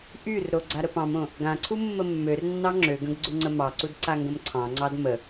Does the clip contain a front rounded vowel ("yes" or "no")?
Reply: yes